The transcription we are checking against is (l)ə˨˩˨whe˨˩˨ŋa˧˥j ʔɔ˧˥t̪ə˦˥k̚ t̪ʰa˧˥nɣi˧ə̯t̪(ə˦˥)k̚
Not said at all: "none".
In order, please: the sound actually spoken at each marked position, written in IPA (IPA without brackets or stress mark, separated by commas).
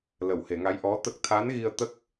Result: l, ə˦˥